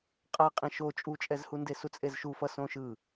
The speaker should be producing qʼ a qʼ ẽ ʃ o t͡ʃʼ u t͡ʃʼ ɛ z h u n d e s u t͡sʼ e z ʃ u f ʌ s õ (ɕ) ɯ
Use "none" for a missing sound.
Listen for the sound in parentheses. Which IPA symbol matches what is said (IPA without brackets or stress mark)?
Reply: ʃ